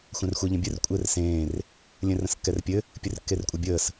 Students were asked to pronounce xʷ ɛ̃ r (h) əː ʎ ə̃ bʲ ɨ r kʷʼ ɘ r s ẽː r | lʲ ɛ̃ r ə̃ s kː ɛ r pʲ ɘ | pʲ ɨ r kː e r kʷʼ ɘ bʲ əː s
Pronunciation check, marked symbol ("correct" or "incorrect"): incorrect